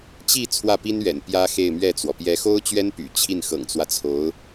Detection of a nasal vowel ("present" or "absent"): absent